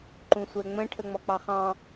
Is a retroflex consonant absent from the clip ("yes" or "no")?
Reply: no